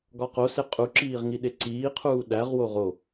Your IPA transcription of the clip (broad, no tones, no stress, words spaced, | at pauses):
ɡɒqose qʼuǁiːʁ ŋiɗeǀiːqʰuː ɗæʁwo ʁo